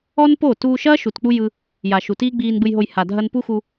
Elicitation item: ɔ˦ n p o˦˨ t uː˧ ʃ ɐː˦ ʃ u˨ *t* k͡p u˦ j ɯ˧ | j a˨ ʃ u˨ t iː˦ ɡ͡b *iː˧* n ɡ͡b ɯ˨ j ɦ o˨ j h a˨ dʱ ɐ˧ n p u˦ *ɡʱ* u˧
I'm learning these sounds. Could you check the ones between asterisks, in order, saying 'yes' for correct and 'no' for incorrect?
yes, yes, no

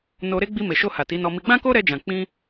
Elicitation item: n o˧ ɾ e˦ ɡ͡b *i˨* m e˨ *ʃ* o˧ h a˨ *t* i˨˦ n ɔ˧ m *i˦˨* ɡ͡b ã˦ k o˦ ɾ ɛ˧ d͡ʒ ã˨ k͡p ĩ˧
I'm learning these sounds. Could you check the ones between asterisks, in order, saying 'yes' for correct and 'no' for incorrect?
no, yes, yes, no

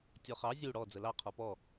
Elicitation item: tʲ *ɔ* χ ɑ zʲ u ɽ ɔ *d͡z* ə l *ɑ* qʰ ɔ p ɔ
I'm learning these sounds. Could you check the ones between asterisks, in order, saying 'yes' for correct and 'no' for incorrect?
yes, yes, yes

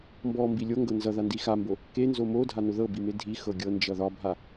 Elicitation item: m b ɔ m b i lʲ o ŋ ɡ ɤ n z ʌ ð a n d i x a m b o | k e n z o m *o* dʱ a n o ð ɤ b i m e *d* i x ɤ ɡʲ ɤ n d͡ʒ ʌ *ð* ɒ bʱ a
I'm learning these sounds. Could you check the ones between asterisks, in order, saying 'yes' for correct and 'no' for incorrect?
yes, no, yes

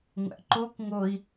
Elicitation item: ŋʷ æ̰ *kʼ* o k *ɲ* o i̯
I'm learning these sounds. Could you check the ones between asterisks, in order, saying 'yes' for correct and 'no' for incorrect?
no, no

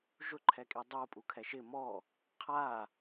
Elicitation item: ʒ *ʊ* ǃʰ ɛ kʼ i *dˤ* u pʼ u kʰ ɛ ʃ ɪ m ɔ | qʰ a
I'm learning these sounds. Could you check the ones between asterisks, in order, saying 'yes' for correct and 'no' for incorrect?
yes, yes

